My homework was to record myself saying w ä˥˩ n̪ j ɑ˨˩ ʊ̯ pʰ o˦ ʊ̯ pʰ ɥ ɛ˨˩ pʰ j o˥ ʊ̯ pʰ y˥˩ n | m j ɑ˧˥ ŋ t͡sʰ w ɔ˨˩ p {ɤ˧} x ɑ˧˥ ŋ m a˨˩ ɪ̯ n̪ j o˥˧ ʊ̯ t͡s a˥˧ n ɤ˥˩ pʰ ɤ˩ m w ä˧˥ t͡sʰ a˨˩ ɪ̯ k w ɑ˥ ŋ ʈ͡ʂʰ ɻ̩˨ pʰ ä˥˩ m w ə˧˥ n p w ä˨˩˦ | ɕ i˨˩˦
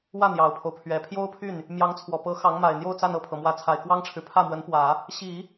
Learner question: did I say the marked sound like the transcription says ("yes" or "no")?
no